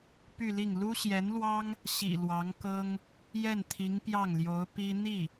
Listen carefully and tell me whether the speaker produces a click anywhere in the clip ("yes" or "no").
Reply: no